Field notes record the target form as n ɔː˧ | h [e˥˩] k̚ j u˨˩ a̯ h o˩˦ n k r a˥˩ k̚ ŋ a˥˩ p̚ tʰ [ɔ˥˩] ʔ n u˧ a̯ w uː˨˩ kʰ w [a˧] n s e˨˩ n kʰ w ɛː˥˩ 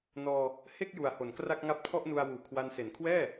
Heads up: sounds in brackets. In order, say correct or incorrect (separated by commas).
correct, correct, correct